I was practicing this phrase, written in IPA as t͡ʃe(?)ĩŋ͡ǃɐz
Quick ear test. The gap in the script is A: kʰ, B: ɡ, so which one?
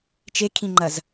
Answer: A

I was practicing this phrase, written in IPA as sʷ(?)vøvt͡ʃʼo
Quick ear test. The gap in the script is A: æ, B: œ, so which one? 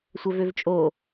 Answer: B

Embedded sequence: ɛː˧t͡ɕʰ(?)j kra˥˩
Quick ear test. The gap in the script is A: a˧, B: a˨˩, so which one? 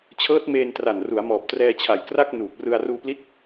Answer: B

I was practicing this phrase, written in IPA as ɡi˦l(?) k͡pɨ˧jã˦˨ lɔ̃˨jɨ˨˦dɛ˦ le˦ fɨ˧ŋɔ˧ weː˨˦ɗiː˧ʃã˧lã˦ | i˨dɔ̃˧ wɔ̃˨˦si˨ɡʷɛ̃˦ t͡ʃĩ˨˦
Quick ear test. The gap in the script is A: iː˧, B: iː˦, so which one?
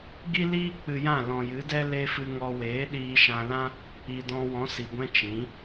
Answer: B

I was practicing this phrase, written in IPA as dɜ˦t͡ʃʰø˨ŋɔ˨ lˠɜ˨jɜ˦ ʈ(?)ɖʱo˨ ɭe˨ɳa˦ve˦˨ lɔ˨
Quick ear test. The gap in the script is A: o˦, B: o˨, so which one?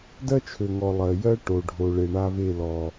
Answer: B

